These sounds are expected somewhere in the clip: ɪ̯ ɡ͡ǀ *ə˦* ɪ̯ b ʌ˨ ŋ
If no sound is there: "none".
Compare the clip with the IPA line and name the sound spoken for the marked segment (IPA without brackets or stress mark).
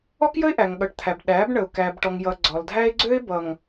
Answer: ø˦